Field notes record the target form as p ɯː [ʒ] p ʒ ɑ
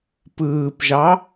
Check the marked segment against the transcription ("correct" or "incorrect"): incorrect